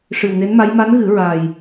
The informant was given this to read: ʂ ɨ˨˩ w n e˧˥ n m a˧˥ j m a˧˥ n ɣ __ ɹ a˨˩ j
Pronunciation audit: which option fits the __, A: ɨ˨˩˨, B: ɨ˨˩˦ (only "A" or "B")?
B